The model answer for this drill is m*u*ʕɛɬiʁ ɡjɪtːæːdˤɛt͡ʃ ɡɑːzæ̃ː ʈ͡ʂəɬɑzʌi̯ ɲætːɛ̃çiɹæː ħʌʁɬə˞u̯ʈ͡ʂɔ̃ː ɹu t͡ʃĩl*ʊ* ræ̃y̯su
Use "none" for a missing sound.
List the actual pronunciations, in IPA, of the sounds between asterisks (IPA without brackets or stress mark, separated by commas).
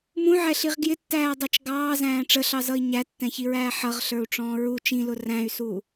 ũ, ʊ